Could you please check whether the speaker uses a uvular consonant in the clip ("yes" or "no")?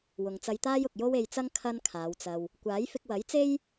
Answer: no